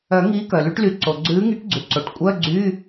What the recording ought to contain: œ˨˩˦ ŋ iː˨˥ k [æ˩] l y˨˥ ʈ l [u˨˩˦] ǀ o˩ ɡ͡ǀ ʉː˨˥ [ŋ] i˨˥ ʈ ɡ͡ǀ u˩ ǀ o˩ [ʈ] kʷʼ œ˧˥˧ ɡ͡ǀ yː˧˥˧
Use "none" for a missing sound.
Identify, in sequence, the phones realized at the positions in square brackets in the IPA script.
œ˩, y˨˩˦, ŋ, ʈ

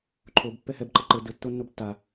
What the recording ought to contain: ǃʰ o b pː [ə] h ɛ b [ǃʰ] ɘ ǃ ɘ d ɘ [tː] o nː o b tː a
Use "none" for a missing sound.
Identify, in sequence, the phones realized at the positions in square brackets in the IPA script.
ɛ, ǃ, tː

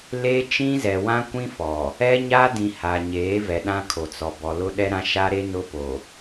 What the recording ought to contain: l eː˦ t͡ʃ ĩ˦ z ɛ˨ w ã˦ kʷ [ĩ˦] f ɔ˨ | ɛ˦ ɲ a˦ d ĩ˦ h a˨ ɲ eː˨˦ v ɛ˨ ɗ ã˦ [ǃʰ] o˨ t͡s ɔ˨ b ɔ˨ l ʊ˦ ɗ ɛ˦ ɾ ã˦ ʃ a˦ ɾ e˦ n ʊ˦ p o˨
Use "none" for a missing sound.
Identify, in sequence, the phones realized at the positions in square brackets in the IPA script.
ĩ˦, kʰ

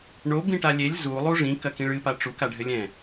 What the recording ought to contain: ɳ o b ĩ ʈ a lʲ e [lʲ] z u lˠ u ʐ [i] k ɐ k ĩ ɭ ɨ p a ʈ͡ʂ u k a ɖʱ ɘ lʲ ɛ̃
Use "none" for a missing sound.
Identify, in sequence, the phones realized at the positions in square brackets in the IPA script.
lʲ, ĩ

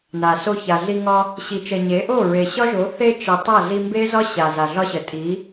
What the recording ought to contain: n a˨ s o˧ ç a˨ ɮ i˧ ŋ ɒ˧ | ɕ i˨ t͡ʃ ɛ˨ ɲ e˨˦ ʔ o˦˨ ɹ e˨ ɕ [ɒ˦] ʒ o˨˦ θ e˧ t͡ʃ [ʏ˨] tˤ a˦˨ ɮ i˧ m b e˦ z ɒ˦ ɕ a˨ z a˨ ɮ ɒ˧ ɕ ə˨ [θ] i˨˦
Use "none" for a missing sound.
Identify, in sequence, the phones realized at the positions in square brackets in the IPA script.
ɒ˦, ə˨, tʼ

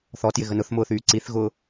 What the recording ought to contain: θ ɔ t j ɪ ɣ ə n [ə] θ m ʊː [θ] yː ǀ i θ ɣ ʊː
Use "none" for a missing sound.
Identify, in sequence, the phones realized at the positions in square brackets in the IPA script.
ʊ, θ

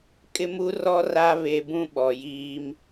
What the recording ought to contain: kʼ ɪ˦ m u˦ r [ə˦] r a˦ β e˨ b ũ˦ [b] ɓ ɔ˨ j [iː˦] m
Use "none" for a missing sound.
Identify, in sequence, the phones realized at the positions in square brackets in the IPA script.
ɔ˦, none, iː˦

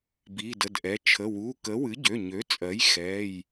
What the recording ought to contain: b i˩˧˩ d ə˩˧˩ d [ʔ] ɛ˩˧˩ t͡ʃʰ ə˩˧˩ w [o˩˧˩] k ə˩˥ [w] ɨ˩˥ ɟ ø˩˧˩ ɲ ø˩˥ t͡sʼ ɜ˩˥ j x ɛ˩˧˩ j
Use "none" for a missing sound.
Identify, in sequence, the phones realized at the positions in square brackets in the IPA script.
ʔ, u˩˧˩, w

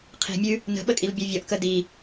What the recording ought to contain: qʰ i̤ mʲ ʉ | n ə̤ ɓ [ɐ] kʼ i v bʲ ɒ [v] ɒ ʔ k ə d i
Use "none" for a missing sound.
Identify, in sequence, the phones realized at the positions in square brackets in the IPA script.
ə, vʲ

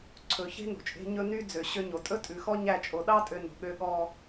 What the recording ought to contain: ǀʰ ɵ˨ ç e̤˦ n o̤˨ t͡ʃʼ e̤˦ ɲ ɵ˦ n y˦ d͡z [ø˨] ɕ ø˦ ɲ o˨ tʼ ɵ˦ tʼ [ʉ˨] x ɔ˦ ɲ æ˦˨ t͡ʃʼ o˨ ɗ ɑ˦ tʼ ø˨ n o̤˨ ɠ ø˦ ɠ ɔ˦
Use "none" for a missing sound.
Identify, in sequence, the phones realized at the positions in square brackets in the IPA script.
ø˨, ʉ˨

